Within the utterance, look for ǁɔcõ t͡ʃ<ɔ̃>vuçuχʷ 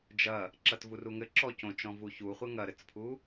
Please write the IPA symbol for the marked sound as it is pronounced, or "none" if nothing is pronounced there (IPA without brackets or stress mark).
ɔ̃